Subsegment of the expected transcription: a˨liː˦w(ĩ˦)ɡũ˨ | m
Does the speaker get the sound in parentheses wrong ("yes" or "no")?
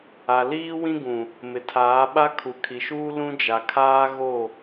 no